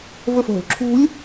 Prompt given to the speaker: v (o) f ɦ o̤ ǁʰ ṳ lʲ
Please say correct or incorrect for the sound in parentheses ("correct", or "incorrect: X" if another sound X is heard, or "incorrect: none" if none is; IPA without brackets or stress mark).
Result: incorrect: ɵ